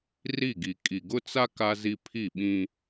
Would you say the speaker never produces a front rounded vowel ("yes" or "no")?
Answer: yes